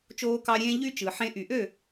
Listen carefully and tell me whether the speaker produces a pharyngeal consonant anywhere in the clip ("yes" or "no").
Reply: yes